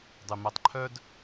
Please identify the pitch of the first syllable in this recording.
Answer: low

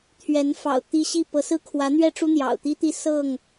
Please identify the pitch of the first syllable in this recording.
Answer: rising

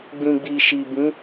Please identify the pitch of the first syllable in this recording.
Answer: low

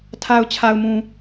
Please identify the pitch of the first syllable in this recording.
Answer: low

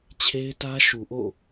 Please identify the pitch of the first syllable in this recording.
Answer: high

